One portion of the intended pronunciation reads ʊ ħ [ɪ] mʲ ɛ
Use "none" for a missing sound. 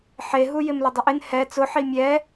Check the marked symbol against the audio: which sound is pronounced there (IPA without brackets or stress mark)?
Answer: i